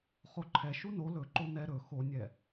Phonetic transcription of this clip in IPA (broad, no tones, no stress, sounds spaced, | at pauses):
χ o ǃʰ ɛ ʃ u n o l ɵ ǃ o n ɛ ɾ ɵ x o nʲ ɛ